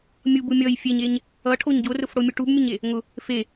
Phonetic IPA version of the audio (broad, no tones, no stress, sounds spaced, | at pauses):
mʲ u b u mʲ ʌ j fʲ e ɲ e ɲ | ʌ ʈʰ o ɲ ɟ o r ʊ f ɽ o mʲ u ʈ u b mʲ ʊ ɲ e | ŋ ʊ | f e